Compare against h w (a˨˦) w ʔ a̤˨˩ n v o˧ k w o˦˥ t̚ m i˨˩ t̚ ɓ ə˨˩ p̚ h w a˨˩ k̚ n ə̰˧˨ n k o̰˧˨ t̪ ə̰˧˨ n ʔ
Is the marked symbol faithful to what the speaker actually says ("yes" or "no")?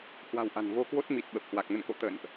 no